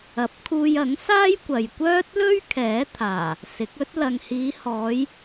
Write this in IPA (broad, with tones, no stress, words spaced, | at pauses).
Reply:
ɐ˨p̚kʰuː˧jɐ˨˥ŋ saː˥jkʷɐ˨jkʷœː˥t̚lɵ˥ɥ kʰɛː˨˥t̪ʰaː˨˩ | sɪ˨˥k̚ ɵ˥t̚ lɐ˨ŋhiː˨˧hɔː˨˧j